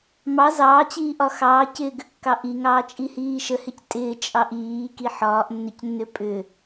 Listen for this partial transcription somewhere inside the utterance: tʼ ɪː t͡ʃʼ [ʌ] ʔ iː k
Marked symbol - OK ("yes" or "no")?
no